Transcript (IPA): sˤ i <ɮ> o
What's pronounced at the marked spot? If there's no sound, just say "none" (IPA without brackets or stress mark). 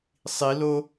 l